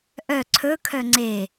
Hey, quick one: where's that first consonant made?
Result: throat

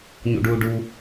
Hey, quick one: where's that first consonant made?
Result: palate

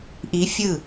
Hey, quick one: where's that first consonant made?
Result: throat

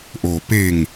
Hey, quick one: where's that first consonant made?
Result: throat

